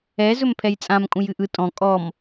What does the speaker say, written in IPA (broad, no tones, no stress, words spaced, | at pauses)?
ɛ zɵmpʰɛjt͡sʼãm kʼũjɨʔɯ tʼɔ̃ kʼɔm